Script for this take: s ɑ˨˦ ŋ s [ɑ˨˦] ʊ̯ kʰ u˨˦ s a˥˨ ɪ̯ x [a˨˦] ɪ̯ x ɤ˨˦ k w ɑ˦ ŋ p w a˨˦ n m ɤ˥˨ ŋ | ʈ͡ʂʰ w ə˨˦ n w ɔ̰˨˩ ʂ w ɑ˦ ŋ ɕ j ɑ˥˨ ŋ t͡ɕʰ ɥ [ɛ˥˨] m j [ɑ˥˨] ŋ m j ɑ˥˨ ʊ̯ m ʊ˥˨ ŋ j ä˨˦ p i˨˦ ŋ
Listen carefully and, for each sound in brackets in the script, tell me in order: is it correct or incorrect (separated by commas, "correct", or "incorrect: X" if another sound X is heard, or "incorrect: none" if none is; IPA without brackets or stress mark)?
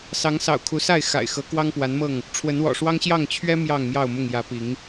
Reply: incorrect: ɑ̰˨˩, incorrect: a̰˨˩, incorrect: ɛ˦, correct